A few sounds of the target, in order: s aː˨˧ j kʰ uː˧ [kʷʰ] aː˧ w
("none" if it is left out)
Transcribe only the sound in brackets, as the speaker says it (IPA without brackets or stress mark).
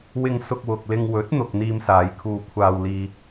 kʷʰ